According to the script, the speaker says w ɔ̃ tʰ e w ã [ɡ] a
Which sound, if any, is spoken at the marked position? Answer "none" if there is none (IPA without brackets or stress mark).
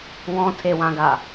ɡ